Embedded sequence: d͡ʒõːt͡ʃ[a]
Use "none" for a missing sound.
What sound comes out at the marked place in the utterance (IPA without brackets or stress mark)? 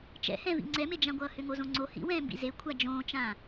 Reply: ã